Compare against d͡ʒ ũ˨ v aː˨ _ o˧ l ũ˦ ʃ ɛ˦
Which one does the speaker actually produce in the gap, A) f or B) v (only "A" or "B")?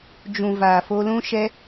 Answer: A